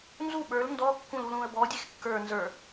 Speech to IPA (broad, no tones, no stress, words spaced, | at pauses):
nzu ɓə˞l ndɔkːũlulũə̯ bɔdʲex kːə˞ nzə˞